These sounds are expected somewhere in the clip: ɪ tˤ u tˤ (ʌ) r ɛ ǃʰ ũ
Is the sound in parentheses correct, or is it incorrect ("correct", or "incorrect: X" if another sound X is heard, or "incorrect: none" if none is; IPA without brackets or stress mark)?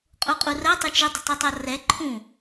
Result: correct